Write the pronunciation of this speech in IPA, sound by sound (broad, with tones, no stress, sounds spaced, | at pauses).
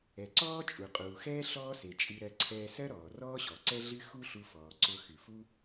ɛ˩ ǀ ɔː˥ t͡ʃʼ u˩ qʼ uː˩ x ɛː˥ ɬ ɔː˥ s e˩ t͡ʃʼ ɨ˧ ɾ ɜ˧ ǀʰ ɛː˧ s ɜ˥ ɾ ɔː˩ r ɔː˥ ɕ ɔ˩ ǀ ɛ˥ ɮ ɨ˥ x u˥ ɬ u˧ f ɔː˩ ǀ ʊ˧ x ɨ˩ f u˥